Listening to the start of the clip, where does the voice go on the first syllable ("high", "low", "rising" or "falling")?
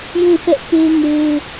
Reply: falling